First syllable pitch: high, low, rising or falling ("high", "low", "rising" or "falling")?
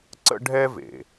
high